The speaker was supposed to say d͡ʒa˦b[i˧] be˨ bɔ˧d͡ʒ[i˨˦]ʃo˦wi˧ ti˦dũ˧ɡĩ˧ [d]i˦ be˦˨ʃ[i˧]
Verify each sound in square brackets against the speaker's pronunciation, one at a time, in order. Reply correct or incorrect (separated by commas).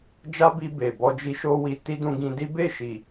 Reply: correct, incorrect, correct, incorrect